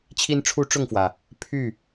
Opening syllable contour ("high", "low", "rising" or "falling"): high